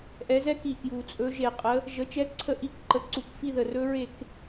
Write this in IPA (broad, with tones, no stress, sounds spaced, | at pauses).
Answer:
ʔ ɛ˨˦ z ɛ˦˥ k i˨˩ k j u˨˩ t͡sʼ ɵ˨˦ ʒ e˧˩˧ qʼ ə˨˦ | ʒ ə˨˦ t͡ʃ ɛ˦˥ ǀʰ ə˥˨ ʔ i˥˨ k ǃ ə˨˦ ǀ u˧˩˧ k f i˥˨ ð ə˨˩ r ɵ˦˥ ɹ e˥˨ k